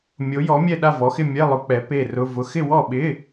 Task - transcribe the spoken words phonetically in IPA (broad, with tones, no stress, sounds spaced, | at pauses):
mʲ o˨˥ j ɔ˨˥ mʲ ɛ˥˨ ɗ a˥˨ v ɔ˨˥ x ɪ˥˨ mʲ ɛ˧˥˧ lˠ ʊ˨˥ k͡p ɛ˨˥ p e˥˨ r ʊ˧˥˧ v ʊ˧˥˧ x ɪ˥˨ w ɔ˥˨ ɓ ɪ˧˥˧